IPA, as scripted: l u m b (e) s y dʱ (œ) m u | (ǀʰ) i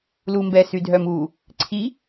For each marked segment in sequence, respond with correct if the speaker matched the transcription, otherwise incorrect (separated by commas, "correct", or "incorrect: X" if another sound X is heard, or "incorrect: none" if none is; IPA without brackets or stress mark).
incorrect: ɛ, correct, correct